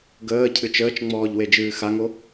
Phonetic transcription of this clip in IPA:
ɡ əː cʰ ɨ t͡ʃ əː t͡ʃ ŋ͡m ɔː ʎ w e d͡ʒ ɨː x a ŋ o

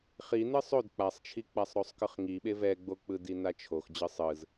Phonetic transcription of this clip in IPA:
χ i n ɯ sˤ o d k͡p a sˤ t͡ʃʰ i k͡p a sˤ ɾ o sˤ k ɯ χ ŋ i ɓ e v ɛ ɡ͡b o k͡p ɯ d i n a t͡ʃʰ o x d͡ʑ ɯ sˤ ɯ z

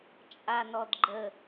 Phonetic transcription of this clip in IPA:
t͡ʃʼ a n ɔ d ɡ͡ǃ ə

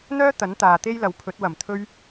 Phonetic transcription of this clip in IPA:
n̪ œː˥ t̪ ɐ˨˥ n t̪ aː˨ t̪ e˥ j l ɐ˨ w pʰ ɵ˨˥ t̚ w ɐ˨˩ m t̪ʰ ɵ˥ ɥ

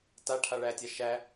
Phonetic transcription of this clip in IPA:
t a ʈʰ a ɭ æ tʲ a ʃ æ

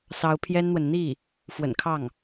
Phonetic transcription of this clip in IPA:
s ɑ˧˥ ʊ̯ pʰ j ɛ˥ n n̪ w ə˨ n n̪ i˥˩ | f w ə̰˨˩ n kʰ ɑ˥˩ ŋ

